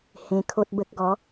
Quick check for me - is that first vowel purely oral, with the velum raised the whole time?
no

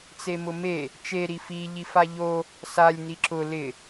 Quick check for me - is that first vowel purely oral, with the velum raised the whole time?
yes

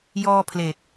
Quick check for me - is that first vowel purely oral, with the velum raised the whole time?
yes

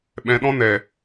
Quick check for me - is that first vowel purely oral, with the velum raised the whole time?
no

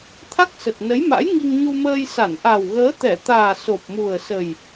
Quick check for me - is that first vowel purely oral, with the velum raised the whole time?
yes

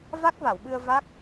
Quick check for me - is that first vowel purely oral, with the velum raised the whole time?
yes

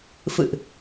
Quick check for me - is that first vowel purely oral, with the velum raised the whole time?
yes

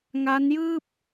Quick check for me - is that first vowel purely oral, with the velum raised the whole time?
yes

